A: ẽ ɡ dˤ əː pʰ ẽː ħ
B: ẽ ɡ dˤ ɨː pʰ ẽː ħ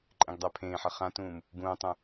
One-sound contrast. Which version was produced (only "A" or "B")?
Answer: A